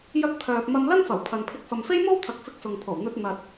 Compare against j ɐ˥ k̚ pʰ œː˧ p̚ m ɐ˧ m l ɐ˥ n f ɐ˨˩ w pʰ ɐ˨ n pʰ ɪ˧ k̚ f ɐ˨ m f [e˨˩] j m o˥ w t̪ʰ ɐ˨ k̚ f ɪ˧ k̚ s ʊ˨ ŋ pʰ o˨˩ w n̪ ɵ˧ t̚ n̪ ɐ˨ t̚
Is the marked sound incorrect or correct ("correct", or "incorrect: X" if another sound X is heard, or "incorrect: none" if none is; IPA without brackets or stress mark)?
incorrect: e˥